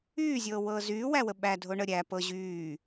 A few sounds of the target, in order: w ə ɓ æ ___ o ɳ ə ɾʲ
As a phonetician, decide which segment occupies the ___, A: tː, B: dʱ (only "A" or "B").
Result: B